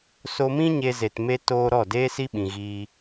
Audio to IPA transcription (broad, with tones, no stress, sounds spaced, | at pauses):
s o˧ m ĩ˦ ɲ e˦ z e˧ t m e˦ t oː˧ ɾ ɔ˦˨ d eː˦ s i˦ ɓ ĩ˨ ɣ iː˧